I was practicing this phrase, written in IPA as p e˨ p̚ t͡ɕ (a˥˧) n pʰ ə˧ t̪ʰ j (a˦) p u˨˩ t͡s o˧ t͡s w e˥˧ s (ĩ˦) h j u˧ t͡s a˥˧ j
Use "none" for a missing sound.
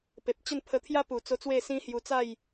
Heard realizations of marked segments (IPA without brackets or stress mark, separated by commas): ə˥˧, a˦, ĩ˦